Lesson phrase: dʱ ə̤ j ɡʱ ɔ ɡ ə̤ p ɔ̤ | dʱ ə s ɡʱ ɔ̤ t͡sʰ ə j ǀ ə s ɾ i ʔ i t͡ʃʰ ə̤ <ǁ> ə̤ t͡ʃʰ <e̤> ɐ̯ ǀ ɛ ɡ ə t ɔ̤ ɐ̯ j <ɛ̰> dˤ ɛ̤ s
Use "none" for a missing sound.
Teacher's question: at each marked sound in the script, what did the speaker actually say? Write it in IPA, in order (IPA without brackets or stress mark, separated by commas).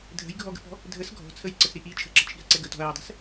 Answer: ǁ, i̤, ɛ